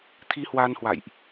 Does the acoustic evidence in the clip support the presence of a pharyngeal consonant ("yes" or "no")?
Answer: no